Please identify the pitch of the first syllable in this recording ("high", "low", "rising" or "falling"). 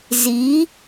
rising